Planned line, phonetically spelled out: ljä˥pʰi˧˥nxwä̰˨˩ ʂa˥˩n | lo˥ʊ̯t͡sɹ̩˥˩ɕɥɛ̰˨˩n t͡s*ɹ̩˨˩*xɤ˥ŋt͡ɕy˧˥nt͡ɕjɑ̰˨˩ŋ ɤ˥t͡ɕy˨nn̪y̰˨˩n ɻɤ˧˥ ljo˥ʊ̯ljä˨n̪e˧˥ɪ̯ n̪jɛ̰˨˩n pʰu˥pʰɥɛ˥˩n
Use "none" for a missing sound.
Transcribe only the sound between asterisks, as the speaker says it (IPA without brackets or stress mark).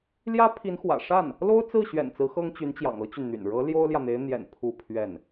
ɹ̩˧˥